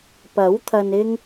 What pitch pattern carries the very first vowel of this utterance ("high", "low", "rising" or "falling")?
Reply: rising